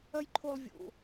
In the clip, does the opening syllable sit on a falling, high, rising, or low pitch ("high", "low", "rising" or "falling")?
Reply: high